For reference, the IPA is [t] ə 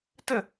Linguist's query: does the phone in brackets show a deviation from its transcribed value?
no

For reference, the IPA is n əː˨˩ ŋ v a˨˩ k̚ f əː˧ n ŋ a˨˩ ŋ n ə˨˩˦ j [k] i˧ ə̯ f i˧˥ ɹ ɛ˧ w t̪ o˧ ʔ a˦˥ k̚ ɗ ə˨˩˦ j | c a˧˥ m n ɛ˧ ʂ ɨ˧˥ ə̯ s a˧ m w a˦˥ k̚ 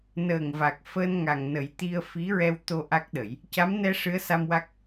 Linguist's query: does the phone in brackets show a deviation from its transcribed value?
yes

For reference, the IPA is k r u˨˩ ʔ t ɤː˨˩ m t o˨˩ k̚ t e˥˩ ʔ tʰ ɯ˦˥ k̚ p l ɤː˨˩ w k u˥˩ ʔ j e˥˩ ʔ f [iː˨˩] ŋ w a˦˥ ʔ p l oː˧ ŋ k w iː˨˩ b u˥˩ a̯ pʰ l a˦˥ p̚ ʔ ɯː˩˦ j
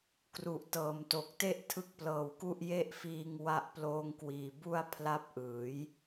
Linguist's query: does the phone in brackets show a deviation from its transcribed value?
yes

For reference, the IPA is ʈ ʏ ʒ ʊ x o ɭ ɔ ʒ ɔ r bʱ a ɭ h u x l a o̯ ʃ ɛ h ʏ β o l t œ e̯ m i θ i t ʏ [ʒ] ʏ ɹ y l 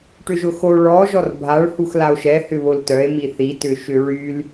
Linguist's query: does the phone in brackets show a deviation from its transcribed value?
yes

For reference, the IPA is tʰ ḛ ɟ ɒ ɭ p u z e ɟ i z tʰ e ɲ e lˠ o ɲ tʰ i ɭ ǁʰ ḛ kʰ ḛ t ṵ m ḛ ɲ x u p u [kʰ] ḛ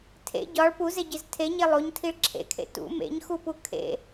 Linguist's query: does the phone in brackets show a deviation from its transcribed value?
no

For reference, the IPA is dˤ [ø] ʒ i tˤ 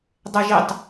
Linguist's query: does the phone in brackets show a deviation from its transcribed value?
yes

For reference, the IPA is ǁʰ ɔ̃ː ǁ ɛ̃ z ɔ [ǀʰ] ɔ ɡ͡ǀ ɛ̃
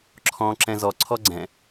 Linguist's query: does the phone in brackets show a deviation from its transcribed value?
no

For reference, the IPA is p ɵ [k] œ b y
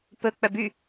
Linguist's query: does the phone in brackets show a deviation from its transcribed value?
yes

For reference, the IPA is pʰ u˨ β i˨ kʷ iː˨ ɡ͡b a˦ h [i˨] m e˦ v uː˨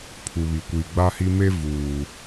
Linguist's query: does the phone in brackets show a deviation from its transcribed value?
yes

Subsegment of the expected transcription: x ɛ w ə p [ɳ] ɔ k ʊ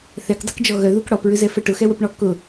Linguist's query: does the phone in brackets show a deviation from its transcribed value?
no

